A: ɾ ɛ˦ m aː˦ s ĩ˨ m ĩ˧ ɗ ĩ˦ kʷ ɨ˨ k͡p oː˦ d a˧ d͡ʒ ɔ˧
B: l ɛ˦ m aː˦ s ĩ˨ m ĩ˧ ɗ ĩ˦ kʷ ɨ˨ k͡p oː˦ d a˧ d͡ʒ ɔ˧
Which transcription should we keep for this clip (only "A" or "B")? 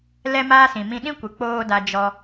B